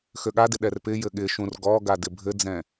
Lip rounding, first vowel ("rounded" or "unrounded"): rounded